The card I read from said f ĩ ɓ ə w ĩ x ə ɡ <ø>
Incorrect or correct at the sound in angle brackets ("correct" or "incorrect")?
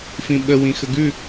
incorrect